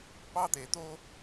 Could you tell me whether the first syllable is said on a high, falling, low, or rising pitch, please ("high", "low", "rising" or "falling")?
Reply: high